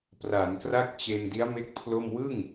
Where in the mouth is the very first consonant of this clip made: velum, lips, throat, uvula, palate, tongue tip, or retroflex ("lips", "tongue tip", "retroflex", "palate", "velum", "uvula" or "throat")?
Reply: lips